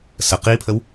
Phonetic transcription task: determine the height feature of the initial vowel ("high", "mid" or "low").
mid